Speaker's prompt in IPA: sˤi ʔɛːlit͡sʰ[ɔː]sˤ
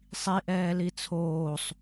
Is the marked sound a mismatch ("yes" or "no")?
yes